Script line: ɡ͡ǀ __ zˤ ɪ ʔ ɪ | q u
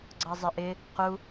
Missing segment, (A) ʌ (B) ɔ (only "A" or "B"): A